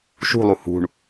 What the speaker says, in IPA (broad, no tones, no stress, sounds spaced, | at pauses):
ʃ ṳ lˠ u h ṳ ɳ